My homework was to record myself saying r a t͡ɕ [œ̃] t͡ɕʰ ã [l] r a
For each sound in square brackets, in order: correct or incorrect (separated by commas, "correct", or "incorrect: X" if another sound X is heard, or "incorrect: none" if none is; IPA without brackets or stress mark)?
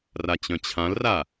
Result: correct, correct